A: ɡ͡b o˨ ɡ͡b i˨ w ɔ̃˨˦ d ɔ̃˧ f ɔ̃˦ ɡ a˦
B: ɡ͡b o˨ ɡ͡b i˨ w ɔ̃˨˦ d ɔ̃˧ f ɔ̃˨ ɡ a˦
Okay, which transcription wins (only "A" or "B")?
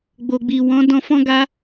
A